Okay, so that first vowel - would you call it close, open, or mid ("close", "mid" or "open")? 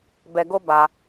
mid